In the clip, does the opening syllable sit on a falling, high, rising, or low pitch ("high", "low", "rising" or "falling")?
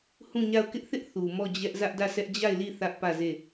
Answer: falling